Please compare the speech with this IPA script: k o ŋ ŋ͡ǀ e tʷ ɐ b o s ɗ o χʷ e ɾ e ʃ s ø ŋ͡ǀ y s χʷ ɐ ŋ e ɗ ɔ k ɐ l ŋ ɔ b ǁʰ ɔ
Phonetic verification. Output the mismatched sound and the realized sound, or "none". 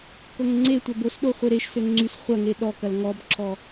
none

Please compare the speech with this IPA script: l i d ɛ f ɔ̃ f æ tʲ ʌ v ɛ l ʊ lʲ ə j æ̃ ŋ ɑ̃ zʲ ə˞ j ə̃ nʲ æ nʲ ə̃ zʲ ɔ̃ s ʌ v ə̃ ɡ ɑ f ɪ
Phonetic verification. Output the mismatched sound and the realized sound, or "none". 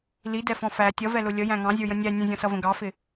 none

